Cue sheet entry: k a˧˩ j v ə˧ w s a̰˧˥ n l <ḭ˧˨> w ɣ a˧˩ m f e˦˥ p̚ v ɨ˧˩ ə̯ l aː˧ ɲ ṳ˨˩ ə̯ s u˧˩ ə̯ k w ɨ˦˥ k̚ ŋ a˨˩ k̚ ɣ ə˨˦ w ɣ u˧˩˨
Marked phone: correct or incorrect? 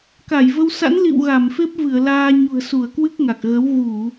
correct